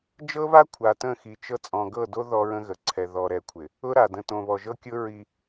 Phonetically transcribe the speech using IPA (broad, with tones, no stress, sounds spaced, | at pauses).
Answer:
d͡ʒ ɤ˦ β a˦ kʷʰ a˨ t ə̃˦˨ x i˨ t͡ʃ ɤ˦ t͡sʼ ɔ̃˨ ɡ ɤ˦˨ d o˦ ð ɔ˦ ɹ ə̃˦ ɣ ə˨ ǀʰ ɛ˨ ð ɔ˨ ɾ ɛ˨ kʷʰ ɪ˨ | ʊ˦ ɾ a˨ d ə̃˨ t õ˨ β ɔ˨ ʒ ɤ˦ kʲ ʊ˦ ɹ i˦